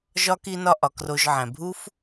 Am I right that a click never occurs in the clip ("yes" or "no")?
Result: yes